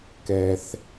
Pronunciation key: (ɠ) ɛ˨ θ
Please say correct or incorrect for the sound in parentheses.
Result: incorrect